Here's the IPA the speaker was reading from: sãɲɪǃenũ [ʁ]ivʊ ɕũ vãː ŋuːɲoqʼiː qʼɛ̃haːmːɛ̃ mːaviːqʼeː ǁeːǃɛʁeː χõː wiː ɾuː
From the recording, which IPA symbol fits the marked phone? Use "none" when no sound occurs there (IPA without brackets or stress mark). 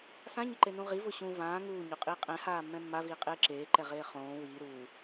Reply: ʁ